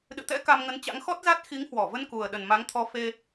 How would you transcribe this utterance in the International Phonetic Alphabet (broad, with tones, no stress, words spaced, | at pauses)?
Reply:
ɗɨ̰˧˨t̪ɛ̰˧˥ ka˧mŋə˨˦nt͡ɕa̰˧˥ŋ xɔ˦˥t̚za˦˥t̚ xi˨˦ŋhwɔ˧˩ və˧nku˨˩ə̯ ɗə˨˩nma˨˦ŋt̪ʰɔ˨˦ fe˧